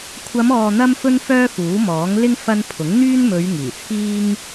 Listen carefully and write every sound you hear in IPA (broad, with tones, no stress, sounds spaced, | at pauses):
kʷʰ ɐ˨˧ m ɔː˨ n̪ ɐ˧ m f ɵ˧ n f œː˥ f uː˨˥ m ɔː˨˥ ŋ l ɪ˥ ŋ f ɐ˧ n pʰ ʊ˨˥ ŋ n̪ yː˥ n m ɵ˨˧ ɥ ŋ iː˨˩ t͡sʰ iː˥ ŋ